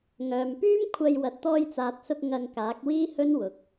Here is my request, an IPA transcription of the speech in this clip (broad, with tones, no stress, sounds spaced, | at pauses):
ŋ œː˨ m p yː˥ m kʷʰ ɐ˧ j w ɐ˨ t̚ t̪ ɔː˧ j t͡s aː˨ t̚ s ʊ˧ k̚ ŋ ɐ˧ ŋ k aː˨˥ k̚ w iː˥ h ɵ˥ n w ʊ˨ k̚